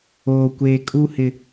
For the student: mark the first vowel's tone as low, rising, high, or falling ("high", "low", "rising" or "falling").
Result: low